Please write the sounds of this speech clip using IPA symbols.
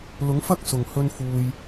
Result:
lʊ˨˥ŋfɐ˥k̚ sʊ˨˩ŋ hɵ˧nfuː˨j

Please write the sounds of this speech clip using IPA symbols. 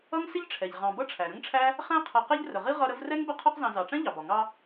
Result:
ʌ˥ŋ sɪ˥ʎʈ͡ʂʰɛ˩ʎ ʁɑ̃˨ bʌ˥ʈ͡ʂʰæ˩ɾə̃˥ŋʈ͡ʂʰæ˥ | χæ̃˦qʰʌ˨qɛ˦ʎ rə˩ʁi˥ ʁʌ˦ɾə˥v rɛ˥ŋbə˦ qʰɒ˦qzɑ̃˨zɑ˩ʈ͡ʂɛ̃˥ ʎɑ˩bɒ˩ ŋɑ˦

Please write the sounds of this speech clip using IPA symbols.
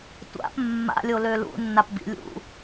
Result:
tʷa̰p mːa̰lʲolø lṵnːapbḭ lʲṵ

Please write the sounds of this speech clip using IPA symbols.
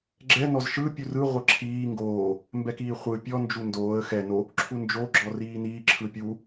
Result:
ɡ͡ǁɛ nɔzʃɯ pʲurɯ ʁʷɤǁʰiː ŋɡoː | mbɛkiːχʷɯ pʲɔ nd͡ʒundoːə̯ xɛ no | ǁʰund͡ʒo ɡ͡ǁɔriːniː ǁʰɯpʲu

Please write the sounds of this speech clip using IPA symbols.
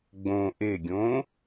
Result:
ɡ͡bõ ʔeɡʲõ

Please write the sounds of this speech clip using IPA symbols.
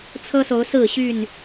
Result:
t͡sʰɤ˦so˨˦ʊ̯sɹ̩˥˨ɕy˥˨n

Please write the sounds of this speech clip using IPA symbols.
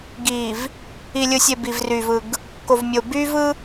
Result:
ɡiː˨v | i˨lʲɯ˨sʲe˨ bi˨vry˨vɯ˨ɡ | ko˨vmʲo˨ by˦ vɯ˦

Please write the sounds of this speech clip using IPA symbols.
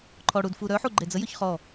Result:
ǃʰɔɽud fuɾœħu ɡ͡ǃed͡zəjɵç χɔ

